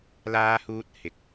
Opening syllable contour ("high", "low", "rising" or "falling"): high